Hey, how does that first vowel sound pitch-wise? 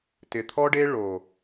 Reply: low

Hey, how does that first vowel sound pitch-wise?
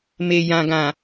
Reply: low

